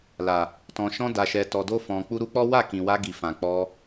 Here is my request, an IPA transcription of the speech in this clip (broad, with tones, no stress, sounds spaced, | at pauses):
l a˨ | t ɔ̃˨ ʃ ɔ̃˧ d a˨ ʃ ɛ˨ t ɔ˨ d o˧ f ɔ̃˨ k͡p u˧ ɾ u˧ k͡p ɔ˦ w a˦˨ k ĩ˨ w a˧ ɡ i˨ f ã˨ k͡p ɔ˧